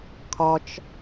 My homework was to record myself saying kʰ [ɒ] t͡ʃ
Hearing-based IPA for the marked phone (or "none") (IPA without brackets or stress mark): ɒ